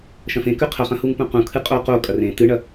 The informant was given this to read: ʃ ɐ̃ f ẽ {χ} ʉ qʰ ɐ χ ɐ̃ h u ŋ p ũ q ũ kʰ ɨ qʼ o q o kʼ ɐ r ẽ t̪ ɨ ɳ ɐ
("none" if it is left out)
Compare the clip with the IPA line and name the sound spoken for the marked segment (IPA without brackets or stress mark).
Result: k